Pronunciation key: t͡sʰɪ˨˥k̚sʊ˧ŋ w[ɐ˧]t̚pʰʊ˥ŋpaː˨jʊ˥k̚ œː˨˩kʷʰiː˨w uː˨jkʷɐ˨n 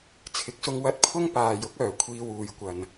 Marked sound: correct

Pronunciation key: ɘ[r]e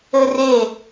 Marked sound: correct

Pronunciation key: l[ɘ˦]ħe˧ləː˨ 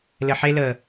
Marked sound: incorrect: ɘ˨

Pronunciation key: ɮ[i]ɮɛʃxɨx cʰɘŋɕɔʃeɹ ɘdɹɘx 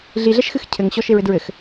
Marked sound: correct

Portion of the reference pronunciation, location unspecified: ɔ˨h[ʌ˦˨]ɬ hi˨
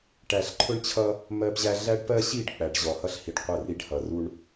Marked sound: incorrect: ʌ˦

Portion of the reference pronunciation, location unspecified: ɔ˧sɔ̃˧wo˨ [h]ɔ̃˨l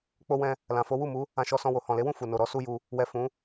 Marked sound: correct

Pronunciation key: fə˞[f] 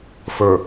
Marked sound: incorrect: none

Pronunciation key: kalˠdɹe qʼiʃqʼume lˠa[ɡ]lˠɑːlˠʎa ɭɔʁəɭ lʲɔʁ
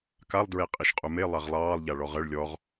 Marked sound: incorrect: ʁ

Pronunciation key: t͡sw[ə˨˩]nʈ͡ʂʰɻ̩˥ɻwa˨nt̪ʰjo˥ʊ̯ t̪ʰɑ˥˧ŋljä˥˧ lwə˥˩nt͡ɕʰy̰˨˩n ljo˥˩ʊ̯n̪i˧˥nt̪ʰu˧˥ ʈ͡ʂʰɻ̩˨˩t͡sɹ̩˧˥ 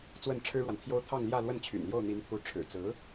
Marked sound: incorrect: ə˥˩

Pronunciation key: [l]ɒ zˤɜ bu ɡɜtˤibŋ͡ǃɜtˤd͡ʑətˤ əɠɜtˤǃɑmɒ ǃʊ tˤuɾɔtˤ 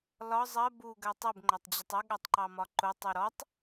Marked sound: correct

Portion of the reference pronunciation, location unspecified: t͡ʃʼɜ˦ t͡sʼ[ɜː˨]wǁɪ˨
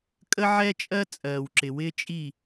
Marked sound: correct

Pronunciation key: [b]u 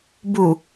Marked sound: correct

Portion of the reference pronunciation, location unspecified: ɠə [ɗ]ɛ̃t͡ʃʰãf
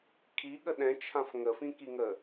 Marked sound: correct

